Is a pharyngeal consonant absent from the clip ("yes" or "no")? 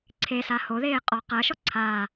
yes